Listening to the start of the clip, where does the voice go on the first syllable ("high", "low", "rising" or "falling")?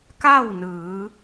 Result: falling